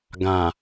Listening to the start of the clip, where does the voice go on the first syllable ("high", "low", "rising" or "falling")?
low